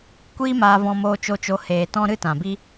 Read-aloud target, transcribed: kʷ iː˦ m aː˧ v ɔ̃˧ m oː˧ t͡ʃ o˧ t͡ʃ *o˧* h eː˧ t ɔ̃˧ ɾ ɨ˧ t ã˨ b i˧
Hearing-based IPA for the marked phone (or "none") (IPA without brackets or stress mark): o˧